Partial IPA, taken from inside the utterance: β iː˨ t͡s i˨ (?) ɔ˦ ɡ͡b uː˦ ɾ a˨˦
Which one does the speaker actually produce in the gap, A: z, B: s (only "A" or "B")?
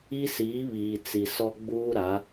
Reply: B